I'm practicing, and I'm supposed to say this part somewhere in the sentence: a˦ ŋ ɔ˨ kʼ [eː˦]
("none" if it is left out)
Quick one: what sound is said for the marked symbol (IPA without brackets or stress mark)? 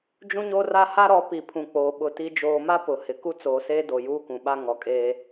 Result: eː˦